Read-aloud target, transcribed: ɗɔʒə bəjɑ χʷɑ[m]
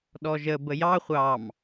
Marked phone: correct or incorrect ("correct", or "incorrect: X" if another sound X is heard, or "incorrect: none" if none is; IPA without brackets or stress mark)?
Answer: correct